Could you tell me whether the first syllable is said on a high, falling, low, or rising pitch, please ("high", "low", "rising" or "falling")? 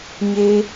high